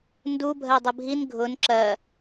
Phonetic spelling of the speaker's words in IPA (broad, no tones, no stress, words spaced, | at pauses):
ndubʱɜdˤɨ bʱin ɡʱʊn ǁɜ